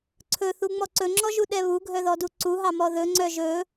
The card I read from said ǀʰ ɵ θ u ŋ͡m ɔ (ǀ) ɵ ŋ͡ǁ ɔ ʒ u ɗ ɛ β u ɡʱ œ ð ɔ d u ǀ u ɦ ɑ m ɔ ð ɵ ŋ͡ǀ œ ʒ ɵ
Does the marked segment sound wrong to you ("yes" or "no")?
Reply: no